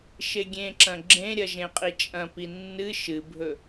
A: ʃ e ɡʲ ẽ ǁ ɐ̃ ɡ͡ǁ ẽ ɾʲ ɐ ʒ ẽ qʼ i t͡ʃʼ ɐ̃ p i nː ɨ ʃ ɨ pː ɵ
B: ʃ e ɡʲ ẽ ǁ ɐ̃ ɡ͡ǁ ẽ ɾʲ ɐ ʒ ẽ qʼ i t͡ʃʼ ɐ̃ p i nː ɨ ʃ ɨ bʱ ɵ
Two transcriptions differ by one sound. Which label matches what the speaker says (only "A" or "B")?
B